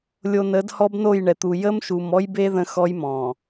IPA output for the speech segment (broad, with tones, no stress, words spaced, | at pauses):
lʲo˨nə˨˦d hɔ˦bno˦˨jɳɛ˨t̪u˨ jə˦mʃu˨m ɔ˦jbe˦ ðə̃˦xɔ˦jmɔ̃˨